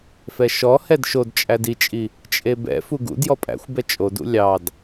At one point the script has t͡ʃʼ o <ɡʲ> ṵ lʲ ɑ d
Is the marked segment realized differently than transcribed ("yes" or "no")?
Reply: yes